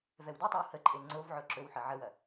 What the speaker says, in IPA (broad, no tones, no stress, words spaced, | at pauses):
vɛwdɛtˤʌw həǃʼe ŋ͡ǀovʕo ǁɵwħʌ ʕəwɐ